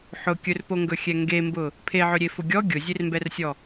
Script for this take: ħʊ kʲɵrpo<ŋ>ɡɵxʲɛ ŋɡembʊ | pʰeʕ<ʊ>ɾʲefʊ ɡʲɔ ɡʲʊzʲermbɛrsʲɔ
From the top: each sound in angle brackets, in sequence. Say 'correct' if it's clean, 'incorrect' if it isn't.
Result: correct, incorrect: ɵ

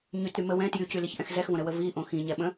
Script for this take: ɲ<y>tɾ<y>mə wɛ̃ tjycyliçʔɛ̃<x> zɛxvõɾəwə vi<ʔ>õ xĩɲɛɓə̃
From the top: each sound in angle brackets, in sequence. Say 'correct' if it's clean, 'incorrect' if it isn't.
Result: correct, correct, correct, correct

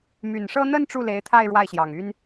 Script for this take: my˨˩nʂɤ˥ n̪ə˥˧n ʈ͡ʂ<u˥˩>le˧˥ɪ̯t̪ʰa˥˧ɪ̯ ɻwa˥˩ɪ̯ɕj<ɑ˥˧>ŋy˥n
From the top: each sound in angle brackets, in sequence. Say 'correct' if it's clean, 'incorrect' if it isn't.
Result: correct, incorrect: ɑ˨˩

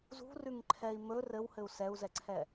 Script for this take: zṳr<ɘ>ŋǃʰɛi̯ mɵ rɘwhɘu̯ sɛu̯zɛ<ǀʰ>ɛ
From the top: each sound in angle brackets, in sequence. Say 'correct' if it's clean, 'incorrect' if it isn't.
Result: incorrect: ʉ, correct

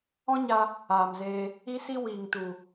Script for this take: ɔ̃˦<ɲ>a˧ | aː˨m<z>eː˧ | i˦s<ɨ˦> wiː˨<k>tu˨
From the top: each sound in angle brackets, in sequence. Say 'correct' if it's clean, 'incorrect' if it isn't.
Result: correct, correct, incorrect: i˦, incorrect: ŋ

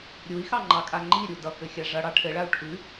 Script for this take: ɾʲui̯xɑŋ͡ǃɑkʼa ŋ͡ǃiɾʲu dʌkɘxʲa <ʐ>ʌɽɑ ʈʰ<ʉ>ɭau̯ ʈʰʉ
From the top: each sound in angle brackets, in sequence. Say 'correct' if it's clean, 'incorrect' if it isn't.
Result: correct, incorrect: ɘ

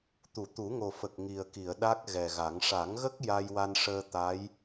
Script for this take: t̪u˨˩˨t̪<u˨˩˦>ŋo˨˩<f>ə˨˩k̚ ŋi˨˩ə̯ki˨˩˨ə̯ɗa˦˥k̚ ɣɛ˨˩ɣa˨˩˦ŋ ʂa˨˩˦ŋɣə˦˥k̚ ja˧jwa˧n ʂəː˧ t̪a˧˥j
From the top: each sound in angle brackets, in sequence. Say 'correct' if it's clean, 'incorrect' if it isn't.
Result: correct, correct

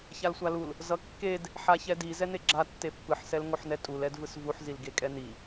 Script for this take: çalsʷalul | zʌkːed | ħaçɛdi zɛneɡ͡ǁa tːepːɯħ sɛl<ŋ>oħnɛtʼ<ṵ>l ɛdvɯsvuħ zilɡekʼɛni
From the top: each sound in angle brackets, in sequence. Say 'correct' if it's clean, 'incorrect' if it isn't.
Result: correct, incorrect: u

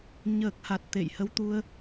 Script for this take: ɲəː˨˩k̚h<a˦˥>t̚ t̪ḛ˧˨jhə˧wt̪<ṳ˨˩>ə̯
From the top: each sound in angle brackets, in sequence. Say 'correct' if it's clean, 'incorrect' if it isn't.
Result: incorrect: a˨˩, incorrect: u˧

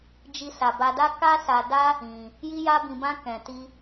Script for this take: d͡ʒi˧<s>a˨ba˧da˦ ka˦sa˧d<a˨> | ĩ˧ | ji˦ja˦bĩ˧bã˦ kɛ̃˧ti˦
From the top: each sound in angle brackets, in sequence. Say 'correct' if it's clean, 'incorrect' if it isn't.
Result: correct, incorrect: a˦

